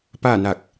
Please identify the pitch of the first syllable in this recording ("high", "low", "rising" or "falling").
falling